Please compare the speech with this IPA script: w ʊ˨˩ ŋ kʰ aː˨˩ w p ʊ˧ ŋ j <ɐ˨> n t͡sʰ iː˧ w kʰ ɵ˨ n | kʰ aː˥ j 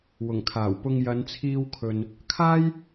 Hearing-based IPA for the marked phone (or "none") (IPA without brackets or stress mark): ɐ˨˧